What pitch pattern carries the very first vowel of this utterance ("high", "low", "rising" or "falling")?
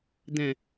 low